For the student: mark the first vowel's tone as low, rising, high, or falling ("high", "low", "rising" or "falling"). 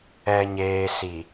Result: low